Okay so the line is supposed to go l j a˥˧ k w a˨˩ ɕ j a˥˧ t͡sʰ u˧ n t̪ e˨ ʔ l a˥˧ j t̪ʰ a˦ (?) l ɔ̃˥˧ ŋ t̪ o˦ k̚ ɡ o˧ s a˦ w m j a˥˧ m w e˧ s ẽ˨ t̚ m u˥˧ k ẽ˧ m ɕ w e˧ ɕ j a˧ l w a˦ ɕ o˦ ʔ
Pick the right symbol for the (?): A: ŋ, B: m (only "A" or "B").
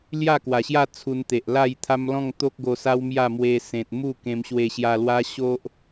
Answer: B